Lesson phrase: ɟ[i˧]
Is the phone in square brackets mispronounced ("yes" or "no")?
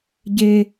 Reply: yes